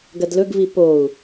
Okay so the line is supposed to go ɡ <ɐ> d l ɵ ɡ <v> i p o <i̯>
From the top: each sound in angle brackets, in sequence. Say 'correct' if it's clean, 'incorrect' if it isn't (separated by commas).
correct, correct, incorrect